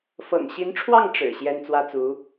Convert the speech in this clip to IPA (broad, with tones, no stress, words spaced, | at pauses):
fɤ̰˨˩ŋɕi˧˥nʈ͡ʂʰwɑ˥˩ŋ ʈ͡ʂɻ̩˨˩ ɕjɛ˥nt͡swä˥t͡su˧˥